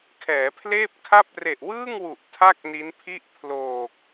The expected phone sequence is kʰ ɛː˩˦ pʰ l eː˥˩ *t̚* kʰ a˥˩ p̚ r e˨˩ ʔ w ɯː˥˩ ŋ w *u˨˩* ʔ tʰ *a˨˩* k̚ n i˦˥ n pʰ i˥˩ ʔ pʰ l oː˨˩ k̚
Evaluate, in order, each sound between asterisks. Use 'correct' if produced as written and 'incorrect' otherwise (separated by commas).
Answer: incorrect, correct, incorrect